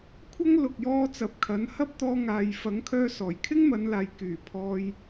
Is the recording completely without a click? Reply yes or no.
yes